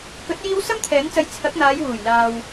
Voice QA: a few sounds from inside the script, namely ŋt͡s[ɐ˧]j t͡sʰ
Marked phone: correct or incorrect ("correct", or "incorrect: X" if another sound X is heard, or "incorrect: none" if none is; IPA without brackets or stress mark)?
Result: correct